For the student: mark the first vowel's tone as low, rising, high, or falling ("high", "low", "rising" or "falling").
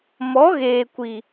rising